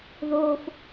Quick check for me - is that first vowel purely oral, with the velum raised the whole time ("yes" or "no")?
yes